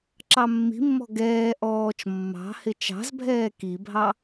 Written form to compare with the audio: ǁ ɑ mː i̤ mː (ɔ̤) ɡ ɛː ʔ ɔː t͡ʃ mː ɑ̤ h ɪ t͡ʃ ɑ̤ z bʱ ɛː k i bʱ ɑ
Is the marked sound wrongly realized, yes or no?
no